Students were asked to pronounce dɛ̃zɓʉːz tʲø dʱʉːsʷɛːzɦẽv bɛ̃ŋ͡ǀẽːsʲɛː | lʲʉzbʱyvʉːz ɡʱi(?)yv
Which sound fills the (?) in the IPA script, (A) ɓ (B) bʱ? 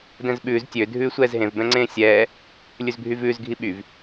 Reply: A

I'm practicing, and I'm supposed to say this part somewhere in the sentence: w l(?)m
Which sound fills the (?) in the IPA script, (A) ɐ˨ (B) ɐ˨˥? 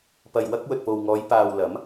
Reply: B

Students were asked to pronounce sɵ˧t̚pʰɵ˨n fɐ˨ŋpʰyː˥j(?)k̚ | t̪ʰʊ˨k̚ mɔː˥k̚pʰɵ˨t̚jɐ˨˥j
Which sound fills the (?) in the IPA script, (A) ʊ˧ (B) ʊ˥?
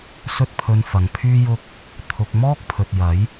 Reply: B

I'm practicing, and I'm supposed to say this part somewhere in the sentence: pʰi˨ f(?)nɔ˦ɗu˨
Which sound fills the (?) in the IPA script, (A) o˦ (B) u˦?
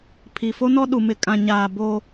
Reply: A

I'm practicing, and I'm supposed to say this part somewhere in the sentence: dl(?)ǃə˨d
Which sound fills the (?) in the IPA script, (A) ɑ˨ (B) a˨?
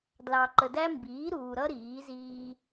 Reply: A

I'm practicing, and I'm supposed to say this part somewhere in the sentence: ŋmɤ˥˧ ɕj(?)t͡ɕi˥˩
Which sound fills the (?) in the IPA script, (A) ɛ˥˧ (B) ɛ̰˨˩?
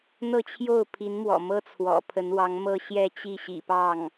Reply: A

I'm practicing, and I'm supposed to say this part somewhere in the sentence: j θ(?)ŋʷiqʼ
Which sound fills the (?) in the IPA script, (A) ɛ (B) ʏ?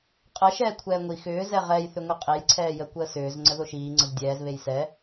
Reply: B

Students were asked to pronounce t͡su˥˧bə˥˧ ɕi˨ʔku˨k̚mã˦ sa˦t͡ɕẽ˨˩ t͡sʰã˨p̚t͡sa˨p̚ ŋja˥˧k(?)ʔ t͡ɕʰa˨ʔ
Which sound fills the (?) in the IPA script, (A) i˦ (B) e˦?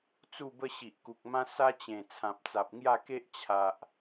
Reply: B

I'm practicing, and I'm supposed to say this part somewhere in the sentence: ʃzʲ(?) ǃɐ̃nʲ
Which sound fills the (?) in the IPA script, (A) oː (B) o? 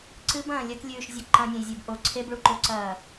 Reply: B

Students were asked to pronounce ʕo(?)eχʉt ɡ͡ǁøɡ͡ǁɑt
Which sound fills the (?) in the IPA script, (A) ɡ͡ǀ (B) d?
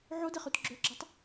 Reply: B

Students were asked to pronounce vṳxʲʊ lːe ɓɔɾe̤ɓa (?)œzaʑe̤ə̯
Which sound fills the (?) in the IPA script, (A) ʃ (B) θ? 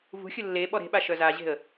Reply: A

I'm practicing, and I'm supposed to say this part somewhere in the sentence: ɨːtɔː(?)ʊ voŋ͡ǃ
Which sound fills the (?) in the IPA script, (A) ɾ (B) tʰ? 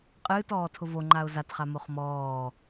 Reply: B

